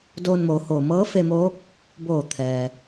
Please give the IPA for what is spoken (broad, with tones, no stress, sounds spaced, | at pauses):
d oː˧ n m oː˩˧ h o˩ m ɤː˧˥ f e˧ m oː˧˥ k̚ | b oː˧˩ t̪ʰ ɛː˩